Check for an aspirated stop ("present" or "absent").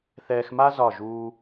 absent